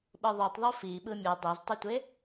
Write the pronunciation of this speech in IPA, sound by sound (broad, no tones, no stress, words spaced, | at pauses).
ɓɯðˤotˤðˤo fi ɓɯmʲɯ dˤeztˤɯtʷe